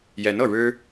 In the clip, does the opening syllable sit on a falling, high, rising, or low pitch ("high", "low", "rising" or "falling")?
rising